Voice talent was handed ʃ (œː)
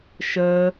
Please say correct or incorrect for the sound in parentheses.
incorrect